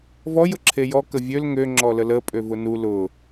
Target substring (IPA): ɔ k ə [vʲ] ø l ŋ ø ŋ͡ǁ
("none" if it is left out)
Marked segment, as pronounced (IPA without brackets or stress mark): vʲ